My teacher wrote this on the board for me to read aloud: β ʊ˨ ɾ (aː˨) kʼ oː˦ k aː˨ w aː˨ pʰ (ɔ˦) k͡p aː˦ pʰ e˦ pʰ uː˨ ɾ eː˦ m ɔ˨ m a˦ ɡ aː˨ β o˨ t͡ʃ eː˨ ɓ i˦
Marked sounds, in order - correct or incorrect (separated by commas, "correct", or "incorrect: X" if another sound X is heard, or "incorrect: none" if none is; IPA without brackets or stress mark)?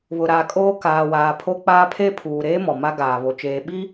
correct, incorrect: o˦